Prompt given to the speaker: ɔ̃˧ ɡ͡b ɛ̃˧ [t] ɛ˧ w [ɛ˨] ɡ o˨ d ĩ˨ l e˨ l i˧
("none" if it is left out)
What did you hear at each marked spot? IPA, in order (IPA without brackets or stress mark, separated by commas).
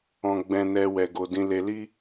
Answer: n, ɛ˨